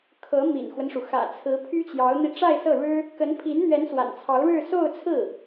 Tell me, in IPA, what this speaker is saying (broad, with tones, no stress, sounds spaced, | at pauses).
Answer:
kʰ ɤ˧˥ m ḭ˨˩ n x w ə˦ n ʂ u˩ x ä̰˨˩ t͡sʰ ɹ̩˧˥ pʰ y˥ t͡ɕ j ɑ˧˥ ʊ̯ n̪ i˧ ʈ͡ʂ a˥˧ ɪ̯ s ɤ˥˩ ɻ ɻ̩˥ | k ə˧˥ n pʰ i˧˥ n n̪ ɥ ɛ˧˥ n s w a̰˨˩ n t͡sʰ ɑ˧˥ ʊ̯ ɻ ɻ̩˥˧ s o˥˧ ʊ̯ t͡sʰ ɹ̩˥˩